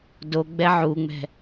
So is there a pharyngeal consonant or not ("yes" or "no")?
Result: yes